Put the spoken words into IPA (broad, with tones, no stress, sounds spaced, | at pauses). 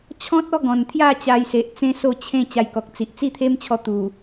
t͡ɕʰ ɔ̃˦ t̚ ɔ˦ ɡ ɔ̃˨˩ n t̪ʰ j a˥˧ t͡ɕ a˧ j s e˨ ʔ t͡s ẽ˦ s o˥˧ t͡ɕʰ ẽ˥˧ t͡ɕ a˧ j k ɔ˨ k̚ t͡s i˨ ʔ t͡s i˥˧ t̪ʰ e˦ m t͡ɕʰ ɔ˧ t̪ u˨˩